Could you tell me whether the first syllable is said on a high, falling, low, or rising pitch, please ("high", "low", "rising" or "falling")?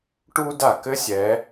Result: high